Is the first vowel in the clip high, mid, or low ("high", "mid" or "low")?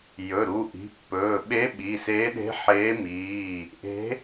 mid